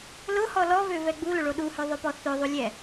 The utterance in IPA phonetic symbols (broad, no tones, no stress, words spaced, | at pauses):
lʊhɔ lɔvøvɛ ɡ͡bulʊɭo ɗuhøðˤøpɔ θøðˤulʲɛ